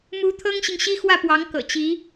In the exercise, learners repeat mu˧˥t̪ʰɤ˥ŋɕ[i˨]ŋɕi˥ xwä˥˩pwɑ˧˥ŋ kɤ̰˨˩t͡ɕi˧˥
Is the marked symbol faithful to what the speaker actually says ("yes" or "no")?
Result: yes